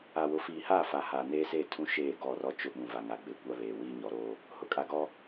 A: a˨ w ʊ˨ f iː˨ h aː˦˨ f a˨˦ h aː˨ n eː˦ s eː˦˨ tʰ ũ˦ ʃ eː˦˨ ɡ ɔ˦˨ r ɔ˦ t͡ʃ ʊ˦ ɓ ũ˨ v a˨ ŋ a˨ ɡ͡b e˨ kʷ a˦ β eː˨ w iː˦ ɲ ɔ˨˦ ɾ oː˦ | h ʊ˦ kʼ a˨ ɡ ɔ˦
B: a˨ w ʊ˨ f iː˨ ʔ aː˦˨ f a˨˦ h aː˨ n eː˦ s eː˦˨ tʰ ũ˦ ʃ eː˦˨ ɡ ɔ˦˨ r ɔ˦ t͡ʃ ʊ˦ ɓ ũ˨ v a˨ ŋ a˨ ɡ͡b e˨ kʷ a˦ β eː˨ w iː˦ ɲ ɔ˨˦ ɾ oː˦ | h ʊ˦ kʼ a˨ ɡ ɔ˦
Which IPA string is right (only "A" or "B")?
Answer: A